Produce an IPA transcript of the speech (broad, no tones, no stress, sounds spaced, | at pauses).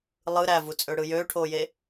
lˠ ɯ ɾ æ v u t͡sʼ ø ɽ ɯ j øː ʈʰ oː j e